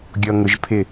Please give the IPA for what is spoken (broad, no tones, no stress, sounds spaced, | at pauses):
ɡʲ ɔ ŋ ʊ ʒ pʰ ɪ